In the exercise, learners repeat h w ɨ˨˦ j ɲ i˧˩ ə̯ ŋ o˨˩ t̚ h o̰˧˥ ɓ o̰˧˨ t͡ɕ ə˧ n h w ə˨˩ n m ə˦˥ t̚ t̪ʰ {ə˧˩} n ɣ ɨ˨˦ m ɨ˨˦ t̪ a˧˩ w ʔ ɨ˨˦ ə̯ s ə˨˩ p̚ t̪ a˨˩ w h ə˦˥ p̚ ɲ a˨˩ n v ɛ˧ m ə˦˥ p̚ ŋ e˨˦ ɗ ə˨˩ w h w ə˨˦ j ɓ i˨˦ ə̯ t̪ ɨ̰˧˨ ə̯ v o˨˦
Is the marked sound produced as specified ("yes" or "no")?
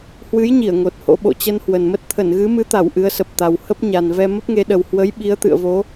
yes